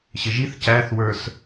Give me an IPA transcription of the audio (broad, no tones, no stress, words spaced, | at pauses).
ɕɪʒiθ cæθwə˞s